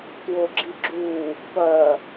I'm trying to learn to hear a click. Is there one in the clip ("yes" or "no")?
yes